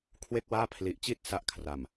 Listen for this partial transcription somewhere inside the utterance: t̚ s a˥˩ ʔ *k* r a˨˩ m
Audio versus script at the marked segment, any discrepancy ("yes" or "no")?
yes